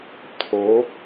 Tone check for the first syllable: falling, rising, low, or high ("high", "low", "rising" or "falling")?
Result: rising